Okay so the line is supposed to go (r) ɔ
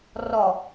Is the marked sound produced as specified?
yes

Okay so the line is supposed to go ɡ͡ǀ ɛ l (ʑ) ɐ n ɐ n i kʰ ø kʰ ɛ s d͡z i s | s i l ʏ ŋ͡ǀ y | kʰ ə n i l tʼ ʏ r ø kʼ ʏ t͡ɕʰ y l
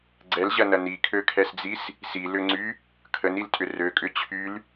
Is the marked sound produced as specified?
yes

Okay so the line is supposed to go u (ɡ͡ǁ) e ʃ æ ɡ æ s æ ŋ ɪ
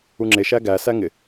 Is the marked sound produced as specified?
no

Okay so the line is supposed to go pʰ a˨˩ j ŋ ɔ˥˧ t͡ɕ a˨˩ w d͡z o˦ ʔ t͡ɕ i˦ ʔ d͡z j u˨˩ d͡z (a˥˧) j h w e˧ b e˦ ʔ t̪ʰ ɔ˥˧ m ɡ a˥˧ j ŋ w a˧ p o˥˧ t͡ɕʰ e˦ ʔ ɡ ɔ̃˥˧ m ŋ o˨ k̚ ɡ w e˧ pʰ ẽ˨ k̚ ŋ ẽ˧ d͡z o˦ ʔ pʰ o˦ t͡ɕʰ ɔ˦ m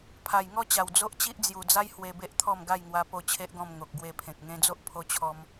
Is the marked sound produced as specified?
no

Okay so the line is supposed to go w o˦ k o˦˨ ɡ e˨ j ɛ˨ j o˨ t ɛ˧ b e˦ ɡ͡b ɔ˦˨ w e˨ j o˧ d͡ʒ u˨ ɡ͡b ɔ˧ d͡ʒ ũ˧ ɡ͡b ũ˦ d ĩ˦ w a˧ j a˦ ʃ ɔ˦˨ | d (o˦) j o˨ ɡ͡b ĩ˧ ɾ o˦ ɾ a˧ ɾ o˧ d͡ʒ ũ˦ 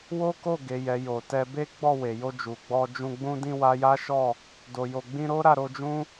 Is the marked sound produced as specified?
no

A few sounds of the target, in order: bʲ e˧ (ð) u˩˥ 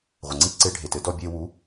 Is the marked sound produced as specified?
no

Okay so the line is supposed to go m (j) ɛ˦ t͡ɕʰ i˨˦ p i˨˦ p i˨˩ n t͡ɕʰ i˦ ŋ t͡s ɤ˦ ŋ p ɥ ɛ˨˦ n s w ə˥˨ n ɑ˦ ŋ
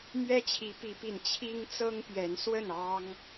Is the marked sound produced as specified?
no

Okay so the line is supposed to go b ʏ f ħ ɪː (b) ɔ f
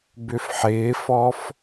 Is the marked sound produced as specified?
no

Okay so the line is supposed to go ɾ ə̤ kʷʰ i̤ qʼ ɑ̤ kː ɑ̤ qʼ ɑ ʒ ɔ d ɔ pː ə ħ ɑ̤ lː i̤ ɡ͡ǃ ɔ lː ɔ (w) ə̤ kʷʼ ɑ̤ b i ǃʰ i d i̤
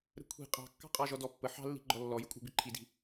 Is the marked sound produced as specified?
no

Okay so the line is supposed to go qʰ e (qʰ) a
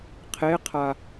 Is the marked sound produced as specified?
yes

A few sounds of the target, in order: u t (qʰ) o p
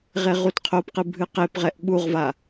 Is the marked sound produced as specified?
yes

